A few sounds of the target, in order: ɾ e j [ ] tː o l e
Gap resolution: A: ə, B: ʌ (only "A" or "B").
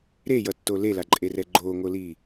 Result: B